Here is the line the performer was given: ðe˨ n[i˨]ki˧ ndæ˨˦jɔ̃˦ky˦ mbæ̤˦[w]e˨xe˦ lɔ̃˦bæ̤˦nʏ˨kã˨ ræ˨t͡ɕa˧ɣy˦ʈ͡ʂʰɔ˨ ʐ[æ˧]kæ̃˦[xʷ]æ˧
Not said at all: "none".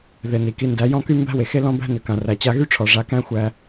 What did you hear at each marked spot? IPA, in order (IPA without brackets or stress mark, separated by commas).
i˨, w, a˧, xʷ